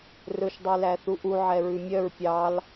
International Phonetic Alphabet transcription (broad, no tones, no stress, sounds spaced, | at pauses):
r ɵ ʃ dˤ ʉ l æ θ u ʔ u ʕ ɛ ɹ ʉ mʲ œ ɹ pʲ ɑ l